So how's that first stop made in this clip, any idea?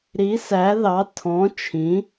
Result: aspirated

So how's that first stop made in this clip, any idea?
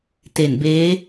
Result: plain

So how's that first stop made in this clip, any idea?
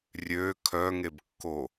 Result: aspirated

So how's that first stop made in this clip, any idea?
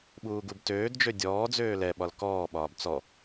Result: implosive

